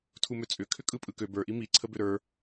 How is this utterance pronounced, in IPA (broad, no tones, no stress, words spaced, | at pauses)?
tʰumøt͡sʼʏ kʰʏkʼɯpʼɯkø bə˞ ʔimi ǀʰəbʏɾə˞